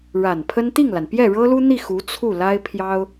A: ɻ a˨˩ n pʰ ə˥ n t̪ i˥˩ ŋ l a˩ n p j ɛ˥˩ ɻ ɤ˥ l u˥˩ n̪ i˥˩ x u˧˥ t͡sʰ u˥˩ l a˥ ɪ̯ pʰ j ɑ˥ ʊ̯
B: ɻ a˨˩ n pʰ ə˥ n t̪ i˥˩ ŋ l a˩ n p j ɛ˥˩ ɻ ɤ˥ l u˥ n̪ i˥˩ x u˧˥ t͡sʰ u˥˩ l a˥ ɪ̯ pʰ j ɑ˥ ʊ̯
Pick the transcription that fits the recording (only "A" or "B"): B